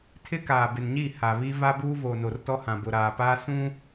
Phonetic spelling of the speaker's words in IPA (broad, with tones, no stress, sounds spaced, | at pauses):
tʰ ɪ˦ k aː˨ b ɪ˨ n ɲ i˦˨ h a˨ β i˦ v a˦ b uː˦ v o˨ n o˨ r t ɔ˦ h ã˨ b ʊ˨ ɾ aː˨ p aː˦ s ũ˦